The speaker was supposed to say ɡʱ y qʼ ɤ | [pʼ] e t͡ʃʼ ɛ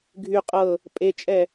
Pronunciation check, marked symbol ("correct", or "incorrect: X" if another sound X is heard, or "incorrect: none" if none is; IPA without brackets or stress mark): correct